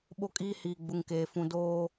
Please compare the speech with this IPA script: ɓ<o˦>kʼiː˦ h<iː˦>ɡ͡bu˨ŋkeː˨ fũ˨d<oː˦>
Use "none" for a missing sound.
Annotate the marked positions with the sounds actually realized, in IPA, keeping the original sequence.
o˦, iː˨, oː˦

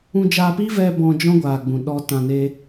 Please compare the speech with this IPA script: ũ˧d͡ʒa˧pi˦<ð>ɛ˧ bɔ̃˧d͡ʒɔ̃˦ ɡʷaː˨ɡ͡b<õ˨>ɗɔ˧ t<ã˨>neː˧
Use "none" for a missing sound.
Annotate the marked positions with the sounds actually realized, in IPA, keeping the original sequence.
v, ũ˨, ã˨

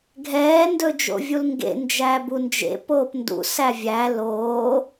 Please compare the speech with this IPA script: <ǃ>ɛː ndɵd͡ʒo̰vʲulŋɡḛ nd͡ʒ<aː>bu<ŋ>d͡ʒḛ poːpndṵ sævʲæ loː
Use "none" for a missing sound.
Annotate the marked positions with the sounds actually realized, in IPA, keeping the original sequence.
ɡʱ, æː, n

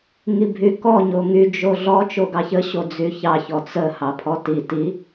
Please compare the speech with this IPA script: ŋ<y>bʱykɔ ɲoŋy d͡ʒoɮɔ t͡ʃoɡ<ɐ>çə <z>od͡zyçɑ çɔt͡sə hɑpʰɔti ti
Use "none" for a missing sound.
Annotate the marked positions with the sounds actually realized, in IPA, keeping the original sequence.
i, ɑ, ɕ

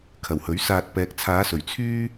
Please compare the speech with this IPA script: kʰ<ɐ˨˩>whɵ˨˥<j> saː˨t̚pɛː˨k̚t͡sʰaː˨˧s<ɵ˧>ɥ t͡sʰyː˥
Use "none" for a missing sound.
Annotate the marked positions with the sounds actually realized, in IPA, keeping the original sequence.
ɐ˨˩, ɥ, ɵ˨˩

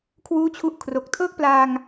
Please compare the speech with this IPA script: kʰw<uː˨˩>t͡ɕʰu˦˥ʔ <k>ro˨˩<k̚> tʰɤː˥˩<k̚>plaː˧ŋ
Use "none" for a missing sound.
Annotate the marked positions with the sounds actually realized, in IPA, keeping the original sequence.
uː˥˩, kʰ, k̚, k̚

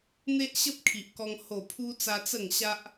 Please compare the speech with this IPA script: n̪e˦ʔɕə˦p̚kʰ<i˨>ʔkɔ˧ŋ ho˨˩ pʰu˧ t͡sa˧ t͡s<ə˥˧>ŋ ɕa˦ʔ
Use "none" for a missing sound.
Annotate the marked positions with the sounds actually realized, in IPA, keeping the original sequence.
i˨, ə˥˧

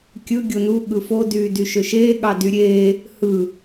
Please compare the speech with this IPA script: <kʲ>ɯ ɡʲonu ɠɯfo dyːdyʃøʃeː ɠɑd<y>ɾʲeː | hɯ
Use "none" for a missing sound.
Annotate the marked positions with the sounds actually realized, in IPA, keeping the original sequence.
kʲ, y

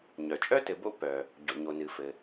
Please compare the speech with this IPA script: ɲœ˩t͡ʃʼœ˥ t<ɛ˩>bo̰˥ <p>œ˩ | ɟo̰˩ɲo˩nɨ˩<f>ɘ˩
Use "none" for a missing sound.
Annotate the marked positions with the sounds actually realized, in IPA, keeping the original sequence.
ɘ˩, p, f

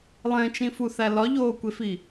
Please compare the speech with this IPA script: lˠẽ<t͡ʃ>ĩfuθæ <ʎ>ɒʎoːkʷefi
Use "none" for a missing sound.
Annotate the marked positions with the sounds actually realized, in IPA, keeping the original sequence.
t͡ʃ, l

